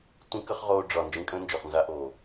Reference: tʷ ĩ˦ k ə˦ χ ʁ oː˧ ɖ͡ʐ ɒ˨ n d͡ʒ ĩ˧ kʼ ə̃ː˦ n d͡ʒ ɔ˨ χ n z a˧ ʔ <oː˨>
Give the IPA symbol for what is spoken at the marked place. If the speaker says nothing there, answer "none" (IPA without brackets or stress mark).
oː˨